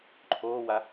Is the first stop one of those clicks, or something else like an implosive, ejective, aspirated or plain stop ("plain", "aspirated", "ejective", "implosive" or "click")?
click